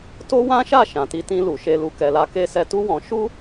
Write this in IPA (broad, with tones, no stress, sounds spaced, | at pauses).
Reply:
t o˦ w ã˦ ʃ a˦˨ ʃ ã˨ t i˧ t ĩ˧ l u˨ ʃ e˧ l u˧ k ɛ˨ l a˨˦ k e˧ s ɛ˧ t u˦ w ɔ̃˧ ʃ u˦